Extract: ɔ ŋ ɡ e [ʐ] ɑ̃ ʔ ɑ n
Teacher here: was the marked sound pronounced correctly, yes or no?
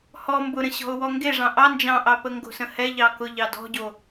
yes